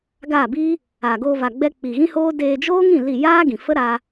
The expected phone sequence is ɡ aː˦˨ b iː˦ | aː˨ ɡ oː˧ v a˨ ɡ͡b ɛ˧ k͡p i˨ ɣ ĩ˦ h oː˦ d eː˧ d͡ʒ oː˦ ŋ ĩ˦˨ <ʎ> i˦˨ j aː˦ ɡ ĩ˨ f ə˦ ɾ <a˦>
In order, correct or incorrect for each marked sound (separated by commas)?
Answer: incorrect, correct